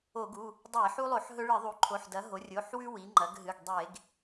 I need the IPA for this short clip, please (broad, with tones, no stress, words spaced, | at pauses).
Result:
o˧˩˧ɡu˩˧˩ | dˤe˧˩˧ħu˦ lˠo˧˩˧ħɦɵ˦ɭɨ˧˩˧ ðˤu˩˥ǃʰo˩˧˩ħdɐ˩˥ ɦo˩˥ rʲo˩˧˩ħwʉ˦ wi˩˥ŋ͡ǃɐ˩˥ɡɦɨ˩˧˩ɡ dˤe˧˩˧ɡ